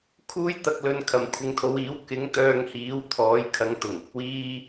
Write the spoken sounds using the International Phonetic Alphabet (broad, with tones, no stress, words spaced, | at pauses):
kʰuː˥jt̪ɐ˧k̚ lɵ˧n kʰɐ˨˩mkʷʰɪ˨ŋt̪ʰo˨˧wiː˨˥w kɪ˨˥ŋt̪œː˧ŋhiː˨˥w t̪ʰɔː˨˥jkʰɐ˨˥ŋ t̪ʊ˨˩ŋɪ˨k̚ wiː˥